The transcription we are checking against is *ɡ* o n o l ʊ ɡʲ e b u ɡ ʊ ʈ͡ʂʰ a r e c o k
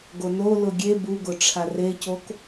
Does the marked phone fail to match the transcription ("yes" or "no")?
no